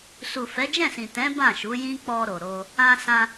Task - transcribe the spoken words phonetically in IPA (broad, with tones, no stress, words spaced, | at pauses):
su˨ fɛ˨˦d͡ʒɛ̃˦˨sĩ˨ tɛ̃˨˦ bã˦˨ʃu˨˦jĩ˦ k͡pɔ˧ɾo˨ɾo˧ | ã˧sã˧